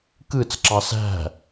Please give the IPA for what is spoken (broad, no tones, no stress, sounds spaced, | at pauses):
k ɯ t͡s ǁ ɑ s æ̤